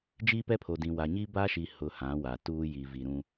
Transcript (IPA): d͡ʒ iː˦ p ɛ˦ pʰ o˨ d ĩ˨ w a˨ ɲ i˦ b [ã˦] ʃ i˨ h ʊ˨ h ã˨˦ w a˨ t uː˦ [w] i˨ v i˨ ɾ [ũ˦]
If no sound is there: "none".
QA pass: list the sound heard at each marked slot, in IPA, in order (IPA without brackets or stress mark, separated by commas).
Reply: a˦, j, ũ˦